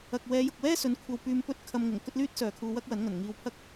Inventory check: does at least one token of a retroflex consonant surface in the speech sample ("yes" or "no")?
no